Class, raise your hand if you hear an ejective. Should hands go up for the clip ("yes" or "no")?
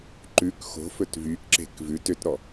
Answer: no